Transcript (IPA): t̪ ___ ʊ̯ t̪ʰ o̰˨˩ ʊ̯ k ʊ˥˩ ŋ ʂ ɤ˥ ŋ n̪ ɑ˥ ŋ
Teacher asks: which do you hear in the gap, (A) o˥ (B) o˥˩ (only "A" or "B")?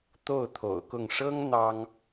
B